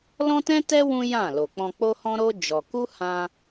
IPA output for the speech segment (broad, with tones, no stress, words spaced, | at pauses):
lɔ̃˦tɛ̃˦tɛ˦ wũ˦jã˦˨ lo˨k͡pɔ̃˧k͡po˦hɔ̃˦ ɾo˦ d͡ʒɔ˧ ku˦hã˧